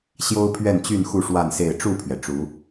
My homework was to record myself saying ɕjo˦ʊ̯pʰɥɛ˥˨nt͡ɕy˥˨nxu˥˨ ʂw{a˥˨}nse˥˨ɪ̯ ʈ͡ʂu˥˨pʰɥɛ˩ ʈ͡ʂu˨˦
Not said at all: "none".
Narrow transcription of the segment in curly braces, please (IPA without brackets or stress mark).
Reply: a˥˨